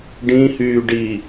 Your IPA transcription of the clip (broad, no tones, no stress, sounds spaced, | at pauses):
ɖ ĩ h yː ɖ i